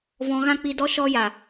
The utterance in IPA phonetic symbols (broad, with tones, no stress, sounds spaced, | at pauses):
v ɔ̃˧ ɣ ã˦ k͡p i˧ d ɔ˦ ʃ ɔ˧ j a˨